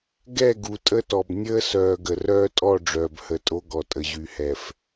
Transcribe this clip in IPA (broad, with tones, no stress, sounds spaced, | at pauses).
ɡ ɛ˦˨ ɡ u˨ tʼ ə˦ t ɔ˨ b nʲ əː˦ s œː˨ ɡ ə˨ r œː˦ tʼ ɔ˦˨ ɖ͡ʐ œː˨ b h ə˨ tʼ o˦ ɡ ɔ˨ tʼ ə˨ ʑ y˨ h ɛ˨ f